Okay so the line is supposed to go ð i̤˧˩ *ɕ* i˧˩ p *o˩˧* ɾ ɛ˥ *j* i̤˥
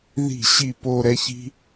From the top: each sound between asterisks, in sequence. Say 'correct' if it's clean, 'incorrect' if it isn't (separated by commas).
correct, incorrect, incorrect